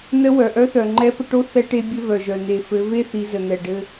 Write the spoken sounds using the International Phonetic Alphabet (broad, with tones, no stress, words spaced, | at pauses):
nə˧˥ wœ˩ʔœ˧˥θœ˩ŋ͡ǃɛ˧˥ pə˧ʈo˥ θɛ˧ʈe˧bʲɘ˧ vœ˩ʒœ˩ n̪e˩fɘ˩˧ ve˥θi˩˧zə˩ n̪ɛ˩ɖɘ˧